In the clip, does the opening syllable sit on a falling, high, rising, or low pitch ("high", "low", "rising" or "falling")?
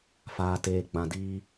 low